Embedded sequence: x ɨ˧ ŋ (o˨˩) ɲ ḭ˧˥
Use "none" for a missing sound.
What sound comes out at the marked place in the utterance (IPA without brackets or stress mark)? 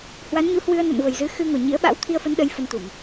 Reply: o˨˩